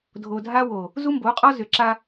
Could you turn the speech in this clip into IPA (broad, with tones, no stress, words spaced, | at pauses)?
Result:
dʱo˨dʱa˦wo˨ | zu˦mbo˨˦qʼɔ˦ zʏ˨ǁa˦